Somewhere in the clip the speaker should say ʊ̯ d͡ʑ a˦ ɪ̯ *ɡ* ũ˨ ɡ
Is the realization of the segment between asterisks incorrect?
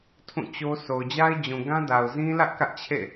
yes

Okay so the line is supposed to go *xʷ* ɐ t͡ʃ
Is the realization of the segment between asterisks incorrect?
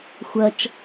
no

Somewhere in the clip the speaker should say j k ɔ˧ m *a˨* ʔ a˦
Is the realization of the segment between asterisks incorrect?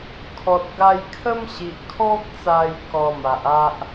no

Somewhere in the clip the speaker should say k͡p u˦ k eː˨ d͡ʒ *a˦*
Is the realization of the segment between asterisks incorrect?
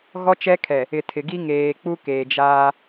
yes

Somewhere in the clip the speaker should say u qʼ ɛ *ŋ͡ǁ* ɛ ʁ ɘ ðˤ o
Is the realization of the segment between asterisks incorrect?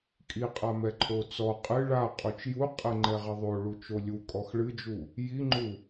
yes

